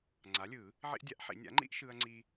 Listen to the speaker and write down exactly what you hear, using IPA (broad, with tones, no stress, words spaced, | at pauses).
ŋ͡ǀa˩˥lʲɯ˨˩˦ | ʕḭ˦ʔdʲa˩˥ʔħḭ˨˩˦ nʲa̰˩˥ŋ͡ǃḭ˦ʔ ʃɯ˦ɐ̯ŋ͡ǀi˦